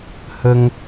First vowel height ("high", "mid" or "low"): mid